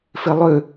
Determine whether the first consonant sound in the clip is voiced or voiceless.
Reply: voiceless